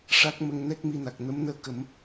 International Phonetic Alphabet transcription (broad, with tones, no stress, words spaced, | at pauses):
ʂa˦˥k̚mə˧ŋnɛ˦˥k̚ mi˧na˨˩k̚ nə˧˥mnəː˧ kə˨˩˦m